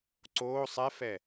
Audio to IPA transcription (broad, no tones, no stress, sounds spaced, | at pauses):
ǀ oː sˤ ɛ f ɛ